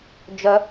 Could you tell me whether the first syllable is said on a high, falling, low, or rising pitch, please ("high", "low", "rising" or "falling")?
high